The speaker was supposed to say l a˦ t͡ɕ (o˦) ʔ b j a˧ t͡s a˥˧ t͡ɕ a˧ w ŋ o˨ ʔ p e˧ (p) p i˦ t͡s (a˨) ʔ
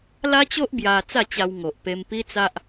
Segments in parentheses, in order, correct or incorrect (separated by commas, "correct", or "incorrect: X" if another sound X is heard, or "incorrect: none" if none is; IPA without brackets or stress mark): correct, incorrect: m, incorrect: a˦